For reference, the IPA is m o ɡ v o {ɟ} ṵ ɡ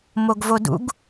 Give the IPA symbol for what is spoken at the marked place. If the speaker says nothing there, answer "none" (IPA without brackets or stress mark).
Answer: d